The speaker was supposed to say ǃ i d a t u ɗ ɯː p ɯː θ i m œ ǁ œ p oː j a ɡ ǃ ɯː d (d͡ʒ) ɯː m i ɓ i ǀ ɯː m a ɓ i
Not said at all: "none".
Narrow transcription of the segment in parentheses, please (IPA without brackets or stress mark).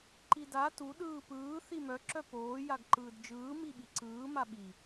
d͡ʒ